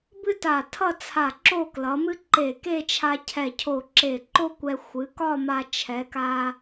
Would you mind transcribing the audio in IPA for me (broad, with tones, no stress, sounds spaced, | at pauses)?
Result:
b ɨ˥ t a˧˩ tʰ ʌ˥˧ t͡sʰ a˧˩ ǁ o˥˧ k l ʌ˩˧ m ɨ˥ ǃ e˧˩ k e˥˧ t͡ʃʰ a˧ cʰ ɛ˧˩ cʰ o˧˩ ǁ e˧˩ ǃ o˥ kʷ ɛ˧ xʷ ɨ˩˧ k ɒ˥˧ m a˧ t͡ʃʰ ɛ˩˧ k a˧